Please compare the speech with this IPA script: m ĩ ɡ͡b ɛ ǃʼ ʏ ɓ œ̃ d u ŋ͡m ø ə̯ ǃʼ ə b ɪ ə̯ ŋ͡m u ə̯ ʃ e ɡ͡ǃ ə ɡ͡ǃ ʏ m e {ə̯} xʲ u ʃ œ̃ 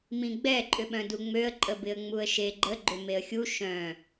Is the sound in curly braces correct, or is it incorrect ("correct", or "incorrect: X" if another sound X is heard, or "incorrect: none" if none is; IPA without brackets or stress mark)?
correct